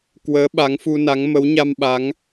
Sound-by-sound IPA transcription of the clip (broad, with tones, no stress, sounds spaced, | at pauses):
k w əː˨˦ ɓ a˨˦ ŋ f u˧ n a˨˦ ŋ m ə˨˦ w ɲ a˧ m ɓ a˨˦ ŋ